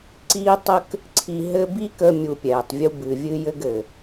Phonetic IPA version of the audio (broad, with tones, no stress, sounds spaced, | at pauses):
ǀ iː˦ tˤ ə˦ k | ǀʰ i˧ ɦ ɘ˦ b i˦ k ə˧ mʲ u˧ pʲ ɛː˨ tˤ vʲ u˦ b ɨ˨ vʲ ɨ˦ j ɘ˦ ɡ ɘ˨